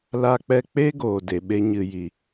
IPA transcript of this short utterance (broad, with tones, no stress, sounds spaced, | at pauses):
l a˦ k͡p ɛ˦ k͡p e˦ ɡ oː˨ d e˨ ɓ e˧ ɲ ɨ˨ j i˨